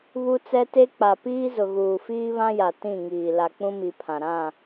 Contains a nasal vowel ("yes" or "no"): yes